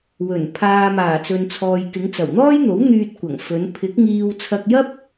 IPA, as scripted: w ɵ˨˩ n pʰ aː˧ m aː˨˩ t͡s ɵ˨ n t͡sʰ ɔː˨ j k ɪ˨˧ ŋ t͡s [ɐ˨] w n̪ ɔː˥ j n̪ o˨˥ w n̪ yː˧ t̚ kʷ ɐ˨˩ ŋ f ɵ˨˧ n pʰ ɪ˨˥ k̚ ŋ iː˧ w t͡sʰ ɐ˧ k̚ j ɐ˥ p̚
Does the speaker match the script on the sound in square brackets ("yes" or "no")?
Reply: no